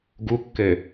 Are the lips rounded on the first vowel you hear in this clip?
yes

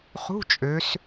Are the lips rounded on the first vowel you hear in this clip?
yes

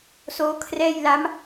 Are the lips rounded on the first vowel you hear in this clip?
yes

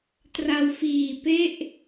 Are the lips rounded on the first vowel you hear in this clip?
no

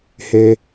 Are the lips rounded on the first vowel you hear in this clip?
no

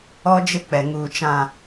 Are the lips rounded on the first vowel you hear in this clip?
yes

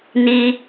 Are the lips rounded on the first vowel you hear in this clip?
no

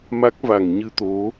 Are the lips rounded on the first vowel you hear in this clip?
no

